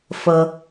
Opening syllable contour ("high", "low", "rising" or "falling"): low